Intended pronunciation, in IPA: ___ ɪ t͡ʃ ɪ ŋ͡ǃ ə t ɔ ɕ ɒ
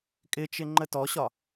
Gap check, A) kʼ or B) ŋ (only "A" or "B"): A